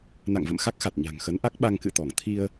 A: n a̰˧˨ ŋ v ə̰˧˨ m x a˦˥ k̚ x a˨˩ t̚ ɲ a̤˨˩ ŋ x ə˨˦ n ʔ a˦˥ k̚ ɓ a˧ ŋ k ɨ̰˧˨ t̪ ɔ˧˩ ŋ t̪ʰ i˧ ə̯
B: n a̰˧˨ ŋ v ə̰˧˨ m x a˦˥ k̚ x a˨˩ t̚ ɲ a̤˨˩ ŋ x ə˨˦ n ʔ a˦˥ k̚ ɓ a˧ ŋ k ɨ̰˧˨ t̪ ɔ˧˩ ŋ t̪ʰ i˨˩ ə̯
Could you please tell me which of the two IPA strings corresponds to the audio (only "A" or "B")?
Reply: A